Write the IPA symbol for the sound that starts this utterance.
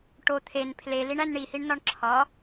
ʈ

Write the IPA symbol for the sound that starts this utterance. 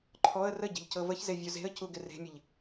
ǃʰ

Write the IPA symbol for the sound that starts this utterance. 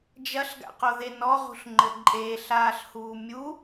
d͡ʒ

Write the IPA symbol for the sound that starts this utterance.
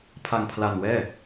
pʰ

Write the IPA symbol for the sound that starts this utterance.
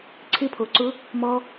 ǀʰ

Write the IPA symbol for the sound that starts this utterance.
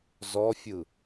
z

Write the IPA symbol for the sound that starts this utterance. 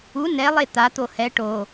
u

